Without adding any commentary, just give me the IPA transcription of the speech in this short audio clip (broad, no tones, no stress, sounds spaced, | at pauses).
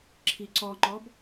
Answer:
ǁʰ i ǀ ɔ ŋ͡ǃ ɔ b